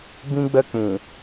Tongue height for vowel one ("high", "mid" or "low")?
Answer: high